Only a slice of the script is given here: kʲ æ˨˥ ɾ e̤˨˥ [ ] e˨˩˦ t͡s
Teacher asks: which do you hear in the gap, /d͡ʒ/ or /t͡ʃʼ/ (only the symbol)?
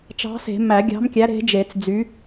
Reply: d͡ʒ